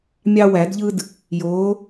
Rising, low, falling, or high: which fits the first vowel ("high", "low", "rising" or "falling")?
high